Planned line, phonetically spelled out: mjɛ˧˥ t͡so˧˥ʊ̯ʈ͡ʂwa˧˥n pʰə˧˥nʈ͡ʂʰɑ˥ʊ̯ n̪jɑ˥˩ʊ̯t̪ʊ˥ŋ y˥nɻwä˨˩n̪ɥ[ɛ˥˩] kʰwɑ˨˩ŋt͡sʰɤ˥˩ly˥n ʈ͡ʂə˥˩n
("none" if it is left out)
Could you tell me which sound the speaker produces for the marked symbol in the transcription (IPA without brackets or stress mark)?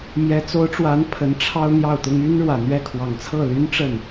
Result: ɛ˥˩